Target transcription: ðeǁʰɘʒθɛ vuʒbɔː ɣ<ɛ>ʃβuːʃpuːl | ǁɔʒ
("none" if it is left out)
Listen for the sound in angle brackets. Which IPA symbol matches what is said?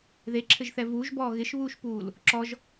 ɪ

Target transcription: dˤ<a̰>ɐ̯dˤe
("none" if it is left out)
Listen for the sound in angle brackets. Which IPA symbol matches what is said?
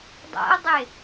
a̰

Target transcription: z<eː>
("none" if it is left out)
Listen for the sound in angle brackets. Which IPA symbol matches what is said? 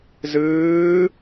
ɨː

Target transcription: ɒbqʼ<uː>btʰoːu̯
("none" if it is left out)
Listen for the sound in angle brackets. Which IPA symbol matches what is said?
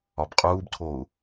uː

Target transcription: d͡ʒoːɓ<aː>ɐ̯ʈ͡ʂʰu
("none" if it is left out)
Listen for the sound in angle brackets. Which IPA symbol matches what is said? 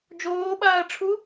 aː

